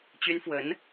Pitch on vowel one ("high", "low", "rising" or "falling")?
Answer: high